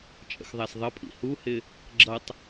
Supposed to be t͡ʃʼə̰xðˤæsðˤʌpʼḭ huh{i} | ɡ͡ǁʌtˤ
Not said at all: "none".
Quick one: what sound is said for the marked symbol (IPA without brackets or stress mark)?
ɪ